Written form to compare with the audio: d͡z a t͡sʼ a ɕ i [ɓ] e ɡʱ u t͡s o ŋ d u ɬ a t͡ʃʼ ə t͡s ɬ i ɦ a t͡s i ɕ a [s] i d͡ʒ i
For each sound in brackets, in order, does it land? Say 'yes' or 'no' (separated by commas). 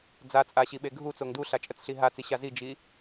yes, no